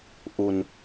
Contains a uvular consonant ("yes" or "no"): no